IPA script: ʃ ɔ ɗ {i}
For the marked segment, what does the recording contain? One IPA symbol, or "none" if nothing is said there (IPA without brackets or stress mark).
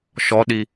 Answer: i